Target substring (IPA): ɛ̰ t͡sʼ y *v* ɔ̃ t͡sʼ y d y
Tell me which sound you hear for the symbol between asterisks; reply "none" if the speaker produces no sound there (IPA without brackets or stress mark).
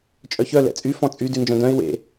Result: f